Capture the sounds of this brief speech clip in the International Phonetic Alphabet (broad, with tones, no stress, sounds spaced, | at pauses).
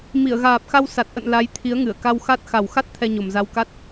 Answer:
m i˧˩ ə̯ ɣ aː˨˩ p̚ x a˧ w s a˨˩ t̚ ʔ ə̰˧˨ n l a˨˦ j t̪ʰ i˨˦ ə̯ ŋ ɨ˧˩ ə̯ k a˧ w x a˦˥ t̚ x a˨˩ w x a˦˥ t̚ t̪ʰ ɛ˧ ɲ o˨˩ m z a˧ w k a˦˥ t̚